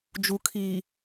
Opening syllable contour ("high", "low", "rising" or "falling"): low